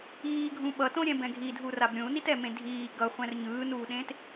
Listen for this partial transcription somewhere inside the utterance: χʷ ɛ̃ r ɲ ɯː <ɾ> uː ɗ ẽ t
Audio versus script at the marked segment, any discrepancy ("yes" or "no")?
yes